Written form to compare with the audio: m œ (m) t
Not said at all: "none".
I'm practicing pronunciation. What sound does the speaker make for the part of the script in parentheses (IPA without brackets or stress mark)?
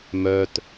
none